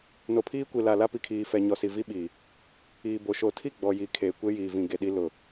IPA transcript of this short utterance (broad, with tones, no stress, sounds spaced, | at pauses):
n o˨ pʰ iː˦ kʷ i˨ l a˨ l a˦ p i˨ kʰ iː˨ f ɛ˨ ɲ ɔ˨ s i˨ v i˦ ɓ iː˨ | iː˨ b o˨ ʃ o˨ tʰ i˦˨ ɡ͡b ɔ˨ j i˨ kʰ eː˨ kʷ e˦ j iː˨ v ĩ˨ ɡ e˨ ɗ i˦ l ʊ˨